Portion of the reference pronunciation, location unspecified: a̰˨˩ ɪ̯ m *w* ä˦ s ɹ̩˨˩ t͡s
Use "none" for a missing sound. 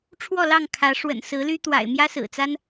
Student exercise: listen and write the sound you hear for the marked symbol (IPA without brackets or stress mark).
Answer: j